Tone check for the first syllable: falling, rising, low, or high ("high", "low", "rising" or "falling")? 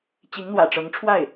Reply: rising